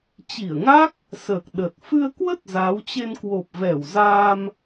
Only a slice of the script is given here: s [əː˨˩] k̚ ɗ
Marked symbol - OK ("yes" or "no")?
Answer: yes